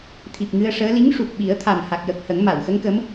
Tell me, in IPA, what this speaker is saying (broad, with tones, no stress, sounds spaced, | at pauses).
t̪ʰ i˨˩ p̚ ŋ ɨ˧ ə̯ ʂ əː˧˥ l i˧˥ ŋ ʂ u˨˩ k̚ ɓ i˨˩˦ ə̯ t̪ʰ a˨˩ m h a˨˩ k̚ j ə˨˩ k̚ h ə˨˩˦ ŋ m a˨˩˨ w x ə˧˥ ŋ k ə˧˥ m